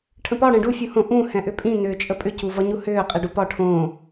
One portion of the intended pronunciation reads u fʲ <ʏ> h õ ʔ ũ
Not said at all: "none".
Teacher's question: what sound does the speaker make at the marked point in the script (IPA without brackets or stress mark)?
u